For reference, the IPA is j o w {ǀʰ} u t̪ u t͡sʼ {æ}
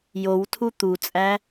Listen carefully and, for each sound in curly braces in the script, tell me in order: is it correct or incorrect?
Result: incorrect: tʰ, correct

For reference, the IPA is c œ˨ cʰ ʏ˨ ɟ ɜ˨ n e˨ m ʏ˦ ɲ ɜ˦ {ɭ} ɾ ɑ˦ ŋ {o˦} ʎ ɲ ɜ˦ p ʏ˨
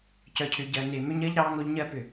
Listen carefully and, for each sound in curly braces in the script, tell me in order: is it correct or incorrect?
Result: incorrect: ʎ, correct

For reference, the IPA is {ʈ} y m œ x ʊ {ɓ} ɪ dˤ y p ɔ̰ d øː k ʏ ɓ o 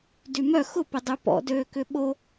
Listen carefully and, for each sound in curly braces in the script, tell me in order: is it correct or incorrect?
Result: incorrect: d, incorrect: p

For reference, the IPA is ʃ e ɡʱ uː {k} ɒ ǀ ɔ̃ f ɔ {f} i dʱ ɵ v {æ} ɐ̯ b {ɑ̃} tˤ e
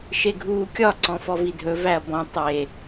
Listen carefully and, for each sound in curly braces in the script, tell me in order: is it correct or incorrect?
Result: incorrect: kʲ, incorrect: v, correct, incorrect: ɔ̃

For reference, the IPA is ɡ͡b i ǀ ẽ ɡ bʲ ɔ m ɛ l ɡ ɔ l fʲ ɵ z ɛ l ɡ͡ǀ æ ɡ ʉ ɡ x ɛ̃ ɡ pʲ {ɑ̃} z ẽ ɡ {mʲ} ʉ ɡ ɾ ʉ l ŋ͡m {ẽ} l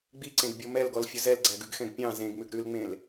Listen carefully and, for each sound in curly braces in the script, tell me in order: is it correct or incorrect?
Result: correct, incorrect: m, correct

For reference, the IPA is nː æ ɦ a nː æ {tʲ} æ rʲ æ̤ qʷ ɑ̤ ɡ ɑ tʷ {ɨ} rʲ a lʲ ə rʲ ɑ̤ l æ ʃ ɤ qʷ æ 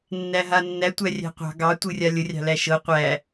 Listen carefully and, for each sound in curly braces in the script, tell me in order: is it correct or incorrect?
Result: incorrect: tʷ, correct

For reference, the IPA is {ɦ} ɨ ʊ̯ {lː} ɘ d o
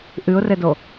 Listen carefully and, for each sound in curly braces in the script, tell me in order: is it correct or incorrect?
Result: incorrect: ʔ, incorrect: r

